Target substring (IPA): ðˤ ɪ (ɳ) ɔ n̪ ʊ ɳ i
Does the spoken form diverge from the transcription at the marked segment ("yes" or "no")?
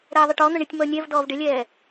yes